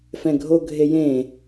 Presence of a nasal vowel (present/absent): present